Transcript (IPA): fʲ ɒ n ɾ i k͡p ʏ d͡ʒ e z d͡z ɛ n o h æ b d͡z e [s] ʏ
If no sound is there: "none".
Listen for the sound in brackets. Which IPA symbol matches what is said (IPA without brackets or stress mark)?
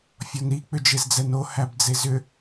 z